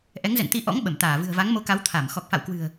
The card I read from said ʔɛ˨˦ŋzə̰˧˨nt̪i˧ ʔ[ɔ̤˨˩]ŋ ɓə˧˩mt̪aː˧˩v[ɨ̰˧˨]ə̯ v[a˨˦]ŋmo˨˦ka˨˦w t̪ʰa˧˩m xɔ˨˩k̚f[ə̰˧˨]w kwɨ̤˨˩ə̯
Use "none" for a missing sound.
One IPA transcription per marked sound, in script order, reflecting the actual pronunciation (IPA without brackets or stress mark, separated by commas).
ɔ̰˧˥, ɨ̤˨˩, a˨˦, a̰˧˨